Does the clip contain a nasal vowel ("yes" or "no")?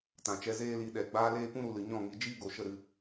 yes